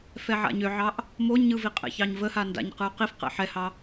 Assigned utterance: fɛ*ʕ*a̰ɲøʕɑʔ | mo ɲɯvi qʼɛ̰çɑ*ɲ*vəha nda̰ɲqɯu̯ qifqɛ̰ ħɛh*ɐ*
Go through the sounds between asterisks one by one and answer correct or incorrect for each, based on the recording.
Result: correct, correct, incorrect: ɑ

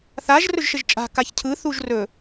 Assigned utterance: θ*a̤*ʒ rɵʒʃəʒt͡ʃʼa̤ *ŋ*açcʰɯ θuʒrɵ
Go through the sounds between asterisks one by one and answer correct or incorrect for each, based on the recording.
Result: incorrect: a, incorrect: k

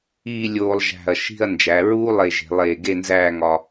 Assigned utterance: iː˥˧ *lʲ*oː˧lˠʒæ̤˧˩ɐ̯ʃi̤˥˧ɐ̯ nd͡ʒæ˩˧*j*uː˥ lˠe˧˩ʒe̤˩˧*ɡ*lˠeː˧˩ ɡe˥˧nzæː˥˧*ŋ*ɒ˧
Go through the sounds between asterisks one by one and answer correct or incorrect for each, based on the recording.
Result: correct, incorrect: ɹ, incorrect: none, correct

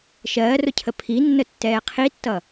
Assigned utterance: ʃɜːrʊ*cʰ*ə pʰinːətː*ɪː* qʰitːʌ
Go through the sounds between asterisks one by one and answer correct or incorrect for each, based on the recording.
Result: correct, incorrect: ɛː

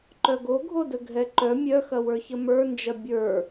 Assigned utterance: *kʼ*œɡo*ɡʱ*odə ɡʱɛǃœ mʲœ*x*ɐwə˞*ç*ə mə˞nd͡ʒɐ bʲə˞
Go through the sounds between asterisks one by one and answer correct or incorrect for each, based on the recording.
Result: incorrect: ǃ, correct, correct, correct

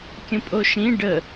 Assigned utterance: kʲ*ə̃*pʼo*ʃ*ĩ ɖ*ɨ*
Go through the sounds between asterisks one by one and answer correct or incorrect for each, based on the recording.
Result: correct, correct, incorrect: ə

